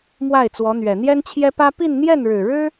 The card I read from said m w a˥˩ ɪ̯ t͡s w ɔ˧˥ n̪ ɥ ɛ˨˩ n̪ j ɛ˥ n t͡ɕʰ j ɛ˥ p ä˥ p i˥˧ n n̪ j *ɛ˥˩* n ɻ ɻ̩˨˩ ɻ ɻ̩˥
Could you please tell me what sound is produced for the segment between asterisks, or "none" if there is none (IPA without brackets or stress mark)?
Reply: ɛ˥˩